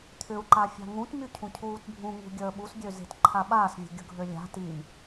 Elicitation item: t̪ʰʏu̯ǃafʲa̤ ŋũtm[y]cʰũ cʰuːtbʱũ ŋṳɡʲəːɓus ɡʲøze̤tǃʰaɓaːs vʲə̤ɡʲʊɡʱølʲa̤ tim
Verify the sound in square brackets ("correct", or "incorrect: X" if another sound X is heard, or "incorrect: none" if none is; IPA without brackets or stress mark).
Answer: correct